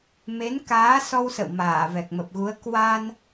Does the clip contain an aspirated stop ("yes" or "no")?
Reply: no